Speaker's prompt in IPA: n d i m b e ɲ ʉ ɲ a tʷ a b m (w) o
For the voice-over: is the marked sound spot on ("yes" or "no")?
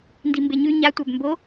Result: no